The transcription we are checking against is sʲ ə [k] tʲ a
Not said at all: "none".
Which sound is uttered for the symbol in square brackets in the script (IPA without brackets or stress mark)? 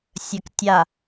k